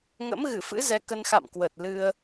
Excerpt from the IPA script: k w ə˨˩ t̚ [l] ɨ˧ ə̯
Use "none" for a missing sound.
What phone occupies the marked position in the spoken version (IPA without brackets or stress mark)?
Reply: l